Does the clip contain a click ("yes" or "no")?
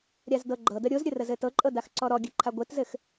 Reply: yes